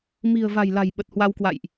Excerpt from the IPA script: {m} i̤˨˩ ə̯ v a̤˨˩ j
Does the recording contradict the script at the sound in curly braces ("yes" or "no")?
no